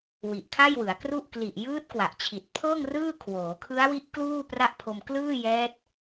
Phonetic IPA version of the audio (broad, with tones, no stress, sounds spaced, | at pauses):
w i˨˩ ʔ kʰ a˥˩ j w ɯ˩˦ a̯ k r u˥˩ ʔ k l i˨˩ ʔ j ɯː˦˥ t̚ k w a˨˩ ʔ t͡ɕʰ i˨˩ t̚ pʰ ɤː˥˩ ŋ r ɯː˥˩ kʰ w oː˩˦ kʰ ɯ˦˥ a̯ w i˦˥ ʔ k l uː˥˩ p r a˥˩ ʔ pʰ o˧ m k l ɯː˥˩ j ɛː˦˥ t̚